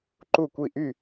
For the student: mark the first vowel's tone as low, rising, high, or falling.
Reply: falling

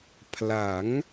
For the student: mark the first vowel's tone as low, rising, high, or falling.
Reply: rising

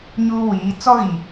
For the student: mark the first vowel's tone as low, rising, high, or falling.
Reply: high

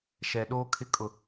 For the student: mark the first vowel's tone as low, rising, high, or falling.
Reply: low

